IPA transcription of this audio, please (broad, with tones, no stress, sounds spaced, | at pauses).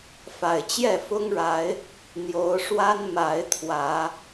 f a˨˩ ɪ̯ t͡ɕ j ɛ˥˨ f ʊ˦ ŋ ɻ a˨˦ ɪ̯ | n̪ j o˨˦ ʊ̯ ʂ w a˦ n m a˨˦ ɪ̯ t̪ʰ w ä˨˦